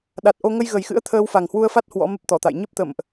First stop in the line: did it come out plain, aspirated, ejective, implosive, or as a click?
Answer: implosive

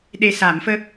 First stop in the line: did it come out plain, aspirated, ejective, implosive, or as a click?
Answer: implosive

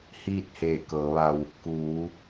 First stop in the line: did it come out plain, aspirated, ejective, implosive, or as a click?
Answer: plain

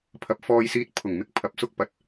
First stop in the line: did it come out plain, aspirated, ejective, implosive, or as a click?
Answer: aspirated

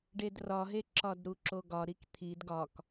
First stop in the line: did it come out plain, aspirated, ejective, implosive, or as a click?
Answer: plain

